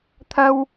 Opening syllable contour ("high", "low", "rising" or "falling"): high